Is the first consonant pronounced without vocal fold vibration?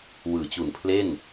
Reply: no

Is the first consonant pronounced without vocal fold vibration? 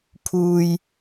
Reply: yes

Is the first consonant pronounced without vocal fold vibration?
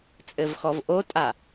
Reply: yes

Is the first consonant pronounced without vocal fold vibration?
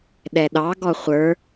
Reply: no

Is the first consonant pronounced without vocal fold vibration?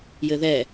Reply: no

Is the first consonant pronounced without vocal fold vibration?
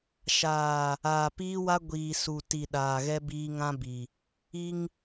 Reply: yes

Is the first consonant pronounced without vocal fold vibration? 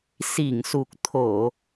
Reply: yes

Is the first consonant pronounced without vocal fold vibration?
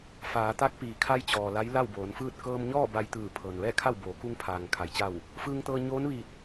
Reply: yes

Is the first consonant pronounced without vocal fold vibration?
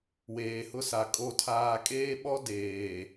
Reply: no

